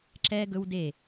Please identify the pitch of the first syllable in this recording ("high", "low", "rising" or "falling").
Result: high